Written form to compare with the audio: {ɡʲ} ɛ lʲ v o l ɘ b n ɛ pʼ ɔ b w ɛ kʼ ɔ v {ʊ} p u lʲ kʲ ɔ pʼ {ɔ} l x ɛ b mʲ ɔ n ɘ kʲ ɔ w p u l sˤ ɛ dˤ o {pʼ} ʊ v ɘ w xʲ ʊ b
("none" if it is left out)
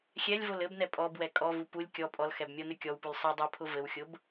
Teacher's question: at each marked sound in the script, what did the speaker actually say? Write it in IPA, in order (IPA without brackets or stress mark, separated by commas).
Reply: xʲ, u, ɔ, pʰ